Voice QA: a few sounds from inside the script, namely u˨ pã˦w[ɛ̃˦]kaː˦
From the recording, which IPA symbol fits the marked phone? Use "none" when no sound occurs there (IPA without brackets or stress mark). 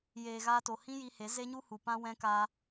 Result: ɛ̃˦